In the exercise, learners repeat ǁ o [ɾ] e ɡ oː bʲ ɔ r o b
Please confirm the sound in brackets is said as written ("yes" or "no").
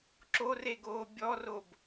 no